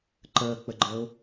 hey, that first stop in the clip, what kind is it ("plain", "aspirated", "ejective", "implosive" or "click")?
click